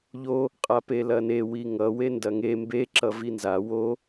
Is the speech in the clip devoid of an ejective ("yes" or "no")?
no